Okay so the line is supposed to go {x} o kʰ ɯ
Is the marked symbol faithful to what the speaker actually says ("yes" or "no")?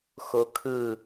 yes